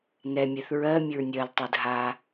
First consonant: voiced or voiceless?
voiced